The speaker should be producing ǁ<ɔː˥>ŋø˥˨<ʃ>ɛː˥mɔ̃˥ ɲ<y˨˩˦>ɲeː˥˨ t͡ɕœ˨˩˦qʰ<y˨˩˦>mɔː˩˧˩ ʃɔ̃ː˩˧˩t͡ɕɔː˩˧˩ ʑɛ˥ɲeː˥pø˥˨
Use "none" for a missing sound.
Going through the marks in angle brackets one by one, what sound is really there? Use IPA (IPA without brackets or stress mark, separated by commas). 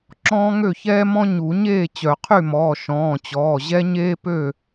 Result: ɔ̃ː˥, ç, u˨˩˦, y˥˨